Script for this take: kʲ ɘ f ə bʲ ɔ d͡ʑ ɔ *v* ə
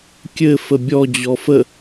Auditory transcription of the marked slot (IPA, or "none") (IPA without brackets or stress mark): f